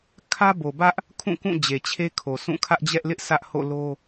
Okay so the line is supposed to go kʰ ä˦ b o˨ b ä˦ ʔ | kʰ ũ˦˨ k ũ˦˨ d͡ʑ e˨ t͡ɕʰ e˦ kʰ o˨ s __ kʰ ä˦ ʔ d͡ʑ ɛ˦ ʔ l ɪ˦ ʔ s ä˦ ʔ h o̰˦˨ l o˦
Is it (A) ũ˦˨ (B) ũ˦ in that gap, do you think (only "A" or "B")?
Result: A